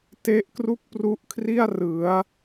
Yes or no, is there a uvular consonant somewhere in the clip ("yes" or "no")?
no